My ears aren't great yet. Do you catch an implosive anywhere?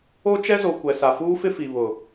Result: no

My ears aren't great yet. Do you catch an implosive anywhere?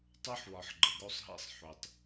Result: no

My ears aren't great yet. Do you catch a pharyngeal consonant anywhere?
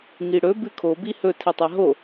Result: no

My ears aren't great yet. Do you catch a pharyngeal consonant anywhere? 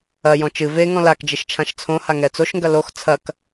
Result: no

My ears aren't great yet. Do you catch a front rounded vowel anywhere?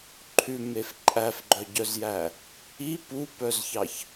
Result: yes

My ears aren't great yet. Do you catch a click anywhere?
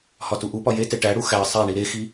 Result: no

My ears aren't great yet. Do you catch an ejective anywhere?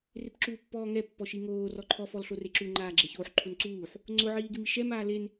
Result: no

